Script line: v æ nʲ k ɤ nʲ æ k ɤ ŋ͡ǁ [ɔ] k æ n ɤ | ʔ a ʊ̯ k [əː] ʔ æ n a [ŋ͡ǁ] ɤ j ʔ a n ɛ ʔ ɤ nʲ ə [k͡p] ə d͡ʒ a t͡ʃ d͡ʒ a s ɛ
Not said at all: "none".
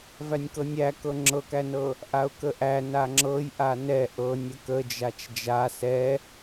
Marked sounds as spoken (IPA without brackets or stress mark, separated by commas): ɤ, ə, ŋ͡ǁ, k